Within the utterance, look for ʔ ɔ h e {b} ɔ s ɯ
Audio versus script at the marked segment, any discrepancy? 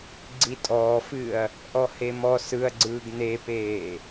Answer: yes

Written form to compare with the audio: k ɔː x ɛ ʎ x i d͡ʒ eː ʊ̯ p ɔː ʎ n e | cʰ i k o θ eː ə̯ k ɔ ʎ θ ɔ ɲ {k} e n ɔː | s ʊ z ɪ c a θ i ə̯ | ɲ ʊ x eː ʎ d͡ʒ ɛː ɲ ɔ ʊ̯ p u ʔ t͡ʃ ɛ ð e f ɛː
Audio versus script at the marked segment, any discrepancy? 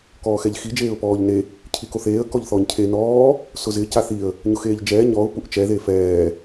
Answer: yes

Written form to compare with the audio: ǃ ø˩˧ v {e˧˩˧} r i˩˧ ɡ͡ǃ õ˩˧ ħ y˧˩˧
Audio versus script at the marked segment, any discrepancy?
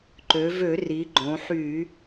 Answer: yes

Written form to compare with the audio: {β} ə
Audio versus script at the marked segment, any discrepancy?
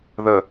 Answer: yes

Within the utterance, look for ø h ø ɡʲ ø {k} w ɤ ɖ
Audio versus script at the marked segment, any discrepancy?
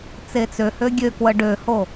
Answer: no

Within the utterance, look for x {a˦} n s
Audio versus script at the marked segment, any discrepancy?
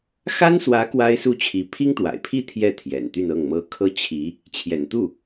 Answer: yes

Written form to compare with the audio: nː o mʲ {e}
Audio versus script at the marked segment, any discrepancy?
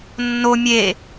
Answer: no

